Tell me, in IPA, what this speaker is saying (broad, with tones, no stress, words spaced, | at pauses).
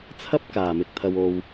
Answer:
t͡sʰɐ˥p̚kaː˨˩mɪ˨k̚ t̪ʰɐ˨wo˨w